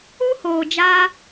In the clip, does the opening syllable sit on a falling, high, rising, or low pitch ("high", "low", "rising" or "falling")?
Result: high